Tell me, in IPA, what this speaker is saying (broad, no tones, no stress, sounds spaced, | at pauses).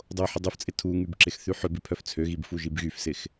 dˤ o ħ ʊ dˤ ø f t͡sʼ ɪ tʰ u ŋ y b ǁ ɪ x θ y ħ ʏ b ɪ pʰ œ f t͡sʰ ø ɣ i b f u ʒ i b ɣ y f s ɪ x